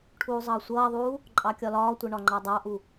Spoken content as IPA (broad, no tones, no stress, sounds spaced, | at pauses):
ʈʰ uː zˤ ʌː sʷ ʌː ðˤ uː | ǃʼ ɑ kʲ ɒ l ɒː tʷ ɛ ɳ ɒ ŋ͡ǃ ɑ dˤ ɑ ʔ u